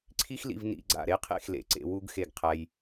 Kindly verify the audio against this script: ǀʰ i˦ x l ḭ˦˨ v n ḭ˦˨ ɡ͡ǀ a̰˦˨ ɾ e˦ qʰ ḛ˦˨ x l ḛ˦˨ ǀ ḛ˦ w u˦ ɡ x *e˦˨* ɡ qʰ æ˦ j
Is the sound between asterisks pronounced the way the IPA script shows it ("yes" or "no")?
yes